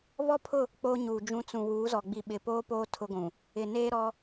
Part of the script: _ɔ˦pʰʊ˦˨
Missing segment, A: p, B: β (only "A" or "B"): B